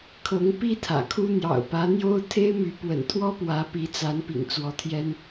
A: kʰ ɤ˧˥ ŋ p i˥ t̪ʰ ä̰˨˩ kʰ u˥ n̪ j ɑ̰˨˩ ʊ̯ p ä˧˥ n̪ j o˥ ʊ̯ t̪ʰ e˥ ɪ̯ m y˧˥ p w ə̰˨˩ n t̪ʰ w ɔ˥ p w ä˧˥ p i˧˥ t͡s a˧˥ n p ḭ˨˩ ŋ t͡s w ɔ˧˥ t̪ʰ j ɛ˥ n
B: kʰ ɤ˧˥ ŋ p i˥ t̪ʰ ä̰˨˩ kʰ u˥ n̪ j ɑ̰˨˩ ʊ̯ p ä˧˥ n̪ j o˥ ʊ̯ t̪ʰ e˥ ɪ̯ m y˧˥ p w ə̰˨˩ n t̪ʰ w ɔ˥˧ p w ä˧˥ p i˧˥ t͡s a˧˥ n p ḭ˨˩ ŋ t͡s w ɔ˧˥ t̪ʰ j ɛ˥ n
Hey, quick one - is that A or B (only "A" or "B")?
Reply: A